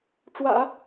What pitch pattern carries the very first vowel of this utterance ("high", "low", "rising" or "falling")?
low